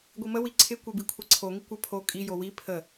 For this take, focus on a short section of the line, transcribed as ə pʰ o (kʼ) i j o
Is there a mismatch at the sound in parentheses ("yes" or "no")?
no